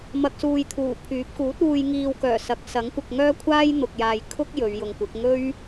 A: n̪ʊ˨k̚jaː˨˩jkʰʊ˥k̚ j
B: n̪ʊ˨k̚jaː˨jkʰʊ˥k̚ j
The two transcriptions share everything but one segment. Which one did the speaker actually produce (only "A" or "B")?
B